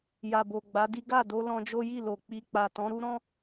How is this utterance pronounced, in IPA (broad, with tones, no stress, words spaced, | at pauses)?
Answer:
ja˨bo˨ɡ͡ba˨˦di˦ ɡa˦˨do˧ lɔ̃˧d͡ʒo˦ji˦˨ lo˨k͡pi˧ k͡pa˨tɔ̃˨˦ɾu˦ ɾɔ̃˦